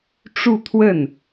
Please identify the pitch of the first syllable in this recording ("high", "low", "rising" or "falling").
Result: falling